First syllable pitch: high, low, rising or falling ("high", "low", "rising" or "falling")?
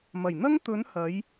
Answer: low